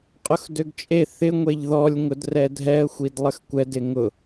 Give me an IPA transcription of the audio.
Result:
qʼ ʊ x d ø ɡ t͡ʃʼ e θ ɪ ŋʷ e ʎ ð ɔ lʲ ŋ ʊ d r ɛ dʱ ɛ ə̯ xʷ i d lˠ ə x kʷ ɛ d ɪ ŋ ʊ

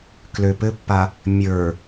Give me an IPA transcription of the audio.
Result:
k l ø p ɘ pː a | mʲ ə˞

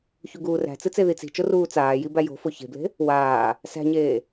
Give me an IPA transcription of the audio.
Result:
ç u ɡ uː r æ̤ t͡s ɨ t͡s e ð i t͡s i̤ t͡ʃ o r uː t͡s aː j i b æ j o̤ f o ç e̤ b l e̤ | w aː | s æ̤ ɲ eː

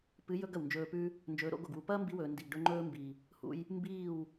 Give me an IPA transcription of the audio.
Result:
p ɨ˨˦ j ɵ˧ ɡ ɐ˨ w n d͡ʒ ɵː˧ p ʉ˦ | n d͡ʒ ɵː˨˦ ɾ o̰˨˦ ɡ o˨ ɡ w u˧ p ɐː˦ m b i˧ w ɵː˨ n d i˨ ɡ ɖ ɵ˧ ŋ͡ǃ ɵː˧ m b i˨ | h ṵ˧ j | m b iː˦˨ w

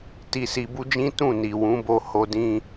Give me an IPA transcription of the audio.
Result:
t i˧ s i˧ b u˦ d͡ʒ ĩ˦ t ũ˦˨ n i˨ w ũ˨˦ b o˧ h o˧ d ĩ˧

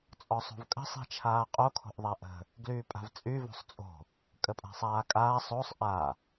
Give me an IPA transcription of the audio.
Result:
t͡sʼ ɔ sˤ o̤ v kʼ ə̤ sˤ i̤ t͡ʃʰ aː qʼ o kʰ o̤ ʔ ðˤ a ʔ ə̤ | ɡ l yː pʼ a̤ v t͡sʼ y v o̤ sˤ t͡sʼ o̤ | kʼ ə pʼ a̤ sˤ aː kʼ aː sˤ o sˤ ʔ a

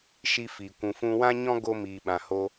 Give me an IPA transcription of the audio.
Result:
ʃ i˦ f i˨ kʷ ũ˨ f ũ˧ w ã˦ ɲ ɔ̃˦ ɡ o˦ m iː˨ ɓ ã˨ h o˧

